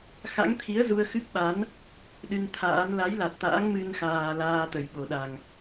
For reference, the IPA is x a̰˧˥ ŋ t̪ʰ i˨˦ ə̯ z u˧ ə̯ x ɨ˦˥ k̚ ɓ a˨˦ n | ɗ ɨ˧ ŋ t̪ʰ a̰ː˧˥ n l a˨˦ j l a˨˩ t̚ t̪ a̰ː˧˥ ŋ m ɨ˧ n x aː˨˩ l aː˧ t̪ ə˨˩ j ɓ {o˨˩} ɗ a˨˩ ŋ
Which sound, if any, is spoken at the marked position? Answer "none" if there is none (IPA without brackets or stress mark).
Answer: o˨˩